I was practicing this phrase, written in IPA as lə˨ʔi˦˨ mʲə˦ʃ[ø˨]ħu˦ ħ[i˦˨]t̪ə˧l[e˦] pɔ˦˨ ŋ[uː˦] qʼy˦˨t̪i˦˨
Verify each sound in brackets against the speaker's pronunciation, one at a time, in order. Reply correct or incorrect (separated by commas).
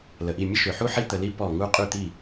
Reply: correct, incorrect, incorrect, incorrect